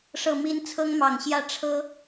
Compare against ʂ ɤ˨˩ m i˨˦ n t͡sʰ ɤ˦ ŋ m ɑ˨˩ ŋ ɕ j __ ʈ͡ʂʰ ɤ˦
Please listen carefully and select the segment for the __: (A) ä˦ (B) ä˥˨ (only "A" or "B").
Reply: B